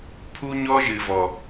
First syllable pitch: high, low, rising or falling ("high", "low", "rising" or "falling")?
high